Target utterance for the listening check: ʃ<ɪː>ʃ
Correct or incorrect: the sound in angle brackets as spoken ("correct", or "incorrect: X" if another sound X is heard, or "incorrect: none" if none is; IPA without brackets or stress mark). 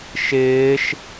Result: correct